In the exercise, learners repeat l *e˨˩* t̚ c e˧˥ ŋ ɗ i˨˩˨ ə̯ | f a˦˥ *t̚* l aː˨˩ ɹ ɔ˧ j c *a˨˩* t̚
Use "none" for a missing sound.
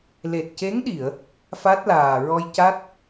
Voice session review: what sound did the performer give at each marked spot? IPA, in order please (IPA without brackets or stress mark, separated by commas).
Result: e˨˩, t̚, a˦˥